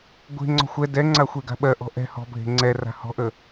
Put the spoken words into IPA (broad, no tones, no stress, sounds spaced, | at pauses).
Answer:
ɡʷ e̤ ŋ͡ǀ ɔ̤ xʷ ɛ d ɛ ŋ͡ǀ a xʷ e ɡ a̤ ɓ ɜ ʔ ɔ̤ ʔ ɛ̤ h ɔ̤ bʱ e̤ ŋ͡ǀ ɛ r a̤ h ɔ̤ ʔ ə